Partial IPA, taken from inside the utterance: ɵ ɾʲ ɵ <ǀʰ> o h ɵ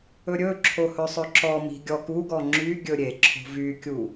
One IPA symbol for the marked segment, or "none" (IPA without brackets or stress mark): ǁʰ